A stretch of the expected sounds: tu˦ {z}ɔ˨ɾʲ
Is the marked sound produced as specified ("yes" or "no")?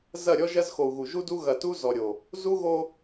yes